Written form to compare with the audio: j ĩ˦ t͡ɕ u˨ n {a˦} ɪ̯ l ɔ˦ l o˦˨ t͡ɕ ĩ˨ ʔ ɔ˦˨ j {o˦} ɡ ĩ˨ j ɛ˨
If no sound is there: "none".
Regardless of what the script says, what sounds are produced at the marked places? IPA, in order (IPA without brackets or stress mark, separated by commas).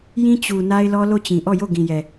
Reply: a˦, o˦˨